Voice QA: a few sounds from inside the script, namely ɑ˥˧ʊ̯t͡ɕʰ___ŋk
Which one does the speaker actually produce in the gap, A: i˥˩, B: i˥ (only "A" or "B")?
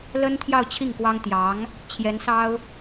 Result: A